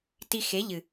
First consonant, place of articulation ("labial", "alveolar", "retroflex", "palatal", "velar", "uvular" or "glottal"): alveolar